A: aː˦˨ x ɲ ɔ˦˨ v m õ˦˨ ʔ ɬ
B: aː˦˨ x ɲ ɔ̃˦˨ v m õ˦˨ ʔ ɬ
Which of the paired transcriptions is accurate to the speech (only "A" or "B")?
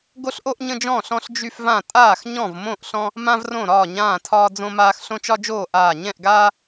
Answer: B